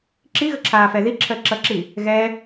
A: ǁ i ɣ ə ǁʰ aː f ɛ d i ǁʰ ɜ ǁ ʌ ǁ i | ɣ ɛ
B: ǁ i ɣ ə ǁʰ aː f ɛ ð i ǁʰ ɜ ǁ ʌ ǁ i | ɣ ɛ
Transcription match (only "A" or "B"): B